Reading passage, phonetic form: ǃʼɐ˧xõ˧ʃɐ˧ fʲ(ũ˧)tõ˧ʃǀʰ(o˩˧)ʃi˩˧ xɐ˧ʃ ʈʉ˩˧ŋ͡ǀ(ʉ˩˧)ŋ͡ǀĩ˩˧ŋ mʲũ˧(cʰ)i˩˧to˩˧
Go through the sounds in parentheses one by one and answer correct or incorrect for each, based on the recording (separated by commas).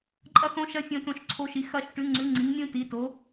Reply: incorrect, incorrect, correct, incorrect